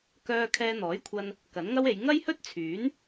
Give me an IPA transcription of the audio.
kœː˧ kʰɛː˧n̪ɔː˨˥jkʷʰɐ˧n | kɐ˨˥nŋɐ˥we˨˧j ŋɐ˥jhɵ˥t̚t͡sʰyː˨˥n

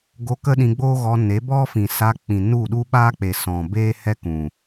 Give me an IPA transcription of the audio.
ɡo˧ kə˦ɗĩ˧ɡ͡boː˦ɣɔ˧ ne˨˦bɔ˦fĩ˨ sa˧k͡pĩ˨ nu˦˨ɗu˦ɓaː˦k͡pe˨ sɔ̃˨ beː˦hɛ˦kũ˨

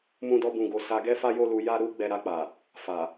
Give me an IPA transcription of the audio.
mũ˦dɔ˦bũ˧ɡo˧ sa˧ɡɛ˦fa˦ jo˦lu˧ja˦ ɾu˦ ɡ͡bɛ˧ɾa˧k͡pa˨ | fa˨

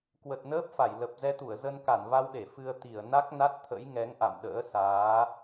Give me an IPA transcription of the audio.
kwə˨˩t̚nəː˦˥p̚fa˧˩j lə˨˩p̚ zɛ˧t̪u˧˩ə̯ zə˧nka˧˩nva˧wɗe˧˩ fɨ˧ə̯t̪i˧˩ə̯ na˦˥k̚na˦˥t̚t̪ʰə̰˧˥j ŋɛ˨˦ŋʔa̰˧˨mɗə̰ː˧˥ saː˨˦

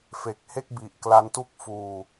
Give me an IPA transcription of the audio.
fe˨˩k̚he˥˩k̚bi˨˩ʔ kla˦˥ntu˥˩k̚fuː˧

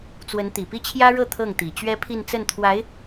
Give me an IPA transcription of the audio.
t͡swə˧˥nt̪i˨˩ pi˥˩t͡ɕʰjä˥ɻɤ˥˧ t̪ʰɤ˥˩ŋt̪i˨˩ t͡ɕɥɛ˥pʰi˥˧n t͡sə˥˩nt̪ʰwa˧˥ɪ̯

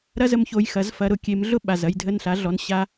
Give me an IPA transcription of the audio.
ɾɐ˥zə˧mço˧j xɐ˩˥zfɐ˧ ɾʊ˧kʲe˩˥mɮʊ˥ ɓa˩z ɐ˥˩jdʱə˥˩nɬa˩˥ɮɔ˩˥n ɕa˧

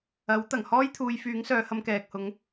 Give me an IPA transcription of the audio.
ɐ˨˥w t̪ɐ˨˩ŋhɔː˥jt̪ʰuː˨˧j fyː˨˥ŋsœː˨˧hɐ˧m kɛː˨k̚hʊ˨˥ŋ

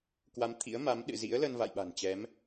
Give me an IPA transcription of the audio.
kwa˨˦mt̪ʰḭ˧˥ə̯ma˨˦mɗɨ̰˧˨ zḭ˧˥ə̯ lə˧nva̰˧˨jɓa̤˨˩n t͡ɕɛ˨˦m

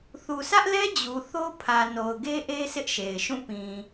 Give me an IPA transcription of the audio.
θu˨sʰä˦ʔlɛ˦ d͡ʑu˨θo˦ pʰä˨ no˨ʊ̯ɡe˦ʔe˦ sɪ˦ʔʃe˨ɪ̯ʃũ˦˨ pĩ˨

